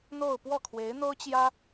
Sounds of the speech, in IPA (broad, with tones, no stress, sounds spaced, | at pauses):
n̪ o˥˧ ʊ̯ p w ɔ˥˩ kʰ w e˧˥ ɪ̯ n̪ o˥ ʊ̯ t͡ɕ j ä˥